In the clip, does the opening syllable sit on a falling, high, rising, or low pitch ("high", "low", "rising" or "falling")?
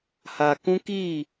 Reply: low